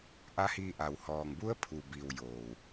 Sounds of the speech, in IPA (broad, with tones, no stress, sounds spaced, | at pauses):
ʔ a˧˥ h iː˧ ʔ a˩ w h ɔː˩ ŋ b u˧˥ ə̯ pʰ u˩ b iː˩ w j oː˩ w